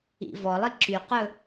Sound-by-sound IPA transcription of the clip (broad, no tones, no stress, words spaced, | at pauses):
ḭvɔlˠi ǁyqɵ